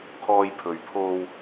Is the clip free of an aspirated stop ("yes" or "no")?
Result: no